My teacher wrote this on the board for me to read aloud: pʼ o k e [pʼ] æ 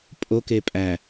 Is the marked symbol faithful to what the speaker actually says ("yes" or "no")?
yes